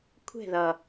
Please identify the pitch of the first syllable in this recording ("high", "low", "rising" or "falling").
falling